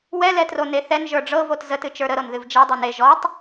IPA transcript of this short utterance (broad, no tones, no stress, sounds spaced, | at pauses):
w ɛ l ɛ t r o n e θ ɛ n ʒ ə˞ ɖ͡ʐ ɤ v o t z ə t ɨ t͡ʃ ə˞ ɾ ə ɾ ɤ n ð ɨ v d͡ʒ e dˤ ɛ n e ʒ ɔ tˤ